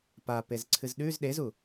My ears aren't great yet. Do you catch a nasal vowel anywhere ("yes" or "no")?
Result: no